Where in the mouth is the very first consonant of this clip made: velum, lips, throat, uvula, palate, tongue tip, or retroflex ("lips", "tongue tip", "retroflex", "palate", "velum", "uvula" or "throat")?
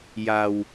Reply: palate